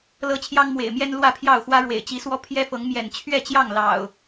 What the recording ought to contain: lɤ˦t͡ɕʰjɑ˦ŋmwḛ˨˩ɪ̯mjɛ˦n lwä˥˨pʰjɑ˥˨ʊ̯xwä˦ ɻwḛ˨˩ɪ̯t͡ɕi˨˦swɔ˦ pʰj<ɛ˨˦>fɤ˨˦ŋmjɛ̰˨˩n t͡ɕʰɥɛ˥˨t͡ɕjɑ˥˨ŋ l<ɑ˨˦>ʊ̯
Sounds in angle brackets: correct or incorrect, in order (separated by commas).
incorrect, incorrect